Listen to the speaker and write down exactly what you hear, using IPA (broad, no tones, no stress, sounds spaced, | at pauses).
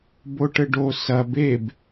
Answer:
b o ʈ ɘ ɖ o s ɐ b e b